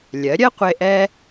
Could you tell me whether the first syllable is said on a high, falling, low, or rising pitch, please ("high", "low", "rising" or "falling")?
rising